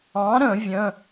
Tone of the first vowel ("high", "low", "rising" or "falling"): rising